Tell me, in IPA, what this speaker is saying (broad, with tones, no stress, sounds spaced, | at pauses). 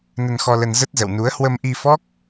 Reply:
n ə˧ n x ɔ˧ l ə˧ n z ə˦˥ t̚ z ə̰˧˨ w n u˨˦ ə̯ h w ə˧ m ʔ i˧ f ɔ˦˥ k̚